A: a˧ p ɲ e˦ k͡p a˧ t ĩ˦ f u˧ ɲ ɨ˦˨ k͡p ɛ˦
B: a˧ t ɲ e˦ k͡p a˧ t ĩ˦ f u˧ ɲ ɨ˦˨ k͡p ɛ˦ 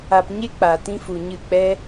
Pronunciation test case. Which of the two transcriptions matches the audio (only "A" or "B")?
A